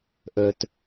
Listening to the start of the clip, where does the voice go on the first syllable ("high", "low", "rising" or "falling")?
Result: low